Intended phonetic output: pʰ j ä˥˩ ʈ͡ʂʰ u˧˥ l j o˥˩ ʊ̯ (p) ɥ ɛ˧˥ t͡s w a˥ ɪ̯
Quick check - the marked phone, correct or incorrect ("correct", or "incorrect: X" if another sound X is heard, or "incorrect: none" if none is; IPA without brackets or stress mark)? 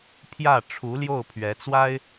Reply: incorrect: pʰ